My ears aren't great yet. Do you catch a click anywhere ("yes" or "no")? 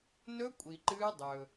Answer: yes